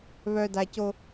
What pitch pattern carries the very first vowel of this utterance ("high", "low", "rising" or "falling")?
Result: high